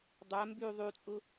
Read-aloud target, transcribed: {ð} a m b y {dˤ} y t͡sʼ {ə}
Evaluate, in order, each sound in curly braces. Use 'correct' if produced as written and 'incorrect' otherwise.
incorrect: dˤ, incorrect: ðˤ, incorrect: ʊ

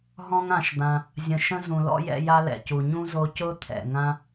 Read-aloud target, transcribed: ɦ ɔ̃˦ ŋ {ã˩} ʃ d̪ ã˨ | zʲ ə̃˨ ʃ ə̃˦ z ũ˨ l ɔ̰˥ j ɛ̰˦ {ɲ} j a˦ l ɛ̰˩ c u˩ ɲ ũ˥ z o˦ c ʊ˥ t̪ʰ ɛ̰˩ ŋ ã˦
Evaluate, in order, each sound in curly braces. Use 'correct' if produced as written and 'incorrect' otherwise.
incorrect: ã˨, incorrect: none

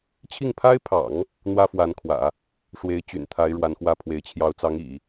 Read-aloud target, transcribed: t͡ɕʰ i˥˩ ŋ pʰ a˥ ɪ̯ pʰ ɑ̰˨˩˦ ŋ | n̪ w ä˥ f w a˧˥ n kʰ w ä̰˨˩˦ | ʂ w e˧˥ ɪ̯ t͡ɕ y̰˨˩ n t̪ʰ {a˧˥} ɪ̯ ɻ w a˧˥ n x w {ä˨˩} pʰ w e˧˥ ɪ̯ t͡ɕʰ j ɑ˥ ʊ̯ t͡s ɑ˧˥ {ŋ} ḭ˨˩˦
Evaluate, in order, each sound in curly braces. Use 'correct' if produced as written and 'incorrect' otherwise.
correct, incorrect: ä˥, correct

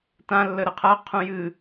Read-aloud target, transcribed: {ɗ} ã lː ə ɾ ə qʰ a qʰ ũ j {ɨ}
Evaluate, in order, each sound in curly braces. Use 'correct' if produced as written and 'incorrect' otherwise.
incorrect: t, correct

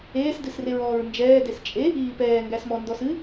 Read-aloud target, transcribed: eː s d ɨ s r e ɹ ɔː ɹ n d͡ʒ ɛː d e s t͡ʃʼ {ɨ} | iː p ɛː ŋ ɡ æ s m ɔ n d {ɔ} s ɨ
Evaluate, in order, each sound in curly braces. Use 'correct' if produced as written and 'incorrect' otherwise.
incorrect: e, correct

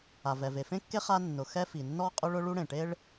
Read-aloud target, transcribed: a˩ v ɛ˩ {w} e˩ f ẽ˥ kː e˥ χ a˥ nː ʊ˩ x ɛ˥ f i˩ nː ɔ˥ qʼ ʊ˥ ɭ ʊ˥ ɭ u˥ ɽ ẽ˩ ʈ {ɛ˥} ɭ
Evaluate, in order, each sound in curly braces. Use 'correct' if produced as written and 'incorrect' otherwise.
incorrect: v, incorrect: e˥

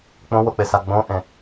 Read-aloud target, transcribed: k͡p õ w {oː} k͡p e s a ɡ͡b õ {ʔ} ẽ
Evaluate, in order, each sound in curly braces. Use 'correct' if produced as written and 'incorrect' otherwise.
incorrect: o, correct

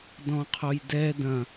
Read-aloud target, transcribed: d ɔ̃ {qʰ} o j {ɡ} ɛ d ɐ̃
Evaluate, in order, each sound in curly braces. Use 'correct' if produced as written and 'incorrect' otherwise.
correct, incorrect: d

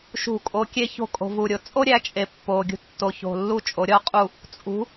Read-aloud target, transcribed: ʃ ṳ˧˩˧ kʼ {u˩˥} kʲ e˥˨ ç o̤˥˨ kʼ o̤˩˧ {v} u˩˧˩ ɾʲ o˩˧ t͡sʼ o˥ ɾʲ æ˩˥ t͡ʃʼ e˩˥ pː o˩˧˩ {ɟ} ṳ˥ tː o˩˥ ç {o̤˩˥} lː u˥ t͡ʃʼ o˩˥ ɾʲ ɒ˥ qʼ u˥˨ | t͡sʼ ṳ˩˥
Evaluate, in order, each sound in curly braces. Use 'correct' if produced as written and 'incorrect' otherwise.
incorrect: o˩˥, correct, incorrect: ɡʲ, incorrect: o̤˩˧˩

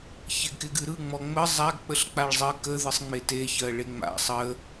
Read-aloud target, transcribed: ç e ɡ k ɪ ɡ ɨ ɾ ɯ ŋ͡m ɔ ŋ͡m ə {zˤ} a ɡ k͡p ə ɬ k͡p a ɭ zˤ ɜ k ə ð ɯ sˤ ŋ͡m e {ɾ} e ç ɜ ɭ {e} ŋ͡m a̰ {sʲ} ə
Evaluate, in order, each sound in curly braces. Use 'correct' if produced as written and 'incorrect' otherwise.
correct, incorrect: t, correct, incorrect: sˤ

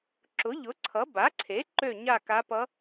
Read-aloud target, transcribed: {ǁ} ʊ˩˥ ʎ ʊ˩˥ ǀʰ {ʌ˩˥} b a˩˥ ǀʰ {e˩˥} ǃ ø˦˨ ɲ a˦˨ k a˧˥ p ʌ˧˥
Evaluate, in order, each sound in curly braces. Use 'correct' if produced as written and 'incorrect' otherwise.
correct, correct, correct

